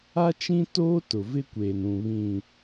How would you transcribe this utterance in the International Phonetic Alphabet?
a˦ t͡ʃ ĩ˦ t oː˦ t ʊ˨ v ɪ˦ kʷ eː˨ n ũ˨ β ĩ˨

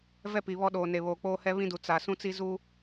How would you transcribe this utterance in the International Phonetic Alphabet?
v ɛ˦ p i˨ β ɔ˦ ɗ oː˨ n e˨ β oː˨ k͡p oː˦ h ɛ˦ β ĩ˦ d u˨ t͡s a˨ s ũ˦ t͡s i˦ z u˦

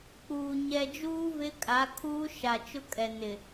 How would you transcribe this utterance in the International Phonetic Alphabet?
k͡p uː˨ ɲ ɛ˨ d͡ʒ uː˦ v ɪ˦ kʼ a˨˦ kʰ uː˦ ʃ a˨ t͡ʃ ʊ˦ kʼ ɛ˨ n ɪ˨

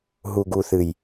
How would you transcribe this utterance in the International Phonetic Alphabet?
ɦ u˨ ɡ u˨ θ ɨ˨ j

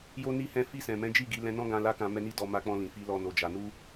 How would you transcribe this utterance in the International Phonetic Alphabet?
j o˧ n i˧ h ɛ̃˧ f i˧ s ɛ̃˨ m ɛ̃˨˦ d͡ʒ i˦˨ ɡ i˨˦ l ɛ̃˧ n ɔ̃˦ ɡ ã˧ l a˦ k ã˧ m ɛ˦ n i˦ d ɔ˧ m a˧ k͡p ɔ̃˧ l ĩ˨ f i˨˦ l ɔ˧ n o˧ d͡ʒ a˧ n u˦

